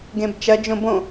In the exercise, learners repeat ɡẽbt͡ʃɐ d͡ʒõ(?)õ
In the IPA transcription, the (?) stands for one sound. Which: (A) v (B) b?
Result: B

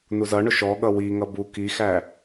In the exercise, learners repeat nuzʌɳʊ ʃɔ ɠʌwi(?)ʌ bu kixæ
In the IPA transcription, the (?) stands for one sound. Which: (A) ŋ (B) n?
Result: A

